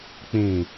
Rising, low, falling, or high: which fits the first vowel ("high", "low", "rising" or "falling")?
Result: low